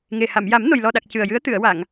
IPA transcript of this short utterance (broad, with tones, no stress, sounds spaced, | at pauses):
ŋ e˨˩ h a˨˩˨ m j a˨˩˦ m n o˨˩ j l ɔ˨˩ ɗ a˨˩ k̚ c ɨ˨˩ ə̯ j ɨ˧˥ ə̯ t̪ ɨ˨˩˨ ə̯ w a˨˩˨ ŋ